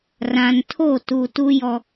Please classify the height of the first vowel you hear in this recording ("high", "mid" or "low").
low